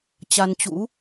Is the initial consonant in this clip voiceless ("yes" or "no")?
yes